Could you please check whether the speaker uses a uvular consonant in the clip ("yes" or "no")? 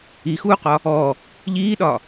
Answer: yes